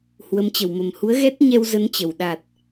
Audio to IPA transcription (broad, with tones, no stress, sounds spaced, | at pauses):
h w ə˨˦ m t͡ɕ ə˧˩ w m ə˨˩ m h u˨˦ ə̯ ɣ ɛ˦˥ t̚ ɲ ɛ˧ w z ə˨˦ n t͡ɕ ə˨˩ w ɗ a˨˩ t̚